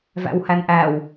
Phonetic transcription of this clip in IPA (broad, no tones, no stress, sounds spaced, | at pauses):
v æ̰ w h æ n ʔ æ w